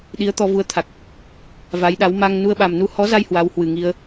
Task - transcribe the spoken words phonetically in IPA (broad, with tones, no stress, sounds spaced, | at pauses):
ɗ i˨˦ ə̯ t̪ ɔ˧ v u˨˦ ə̯ t̪ʰ a˨˩ k̚ | v a˨˦ j ɗ a˨˦ w m a˧ ŋ n u˧ ə̯ ɓ a˨˩ m n u˧ h ɔ˨˦ z a˧ j h w a˨˦ w h w ɨ˨˩ ŋ i˧ ə̯